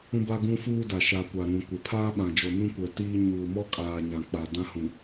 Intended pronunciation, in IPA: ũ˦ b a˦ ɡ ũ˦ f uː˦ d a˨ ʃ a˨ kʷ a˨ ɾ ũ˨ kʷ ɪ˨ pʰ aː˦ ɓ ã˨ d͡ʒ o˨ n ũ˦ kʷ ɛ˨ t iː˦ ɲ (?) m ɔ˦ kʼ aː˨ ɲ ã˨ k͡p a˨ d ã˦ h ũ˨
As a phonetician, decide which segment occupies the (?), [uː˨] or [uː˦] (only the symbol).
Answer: uː˨